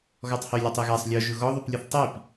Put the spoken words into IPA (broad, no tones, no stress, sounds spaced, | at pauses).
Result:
ɣ ɔ tˤ h y lʲ ɔ tˤ i ɣ a sˤ lʲ ɔ ʒ ʊ ɣ ɔ ðˤ y p lʲ ʊ θ tˤ i p